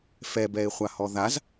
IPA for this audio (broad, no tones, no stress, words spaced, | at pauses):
fɛbɛɪ̯χʷahɔ ðaz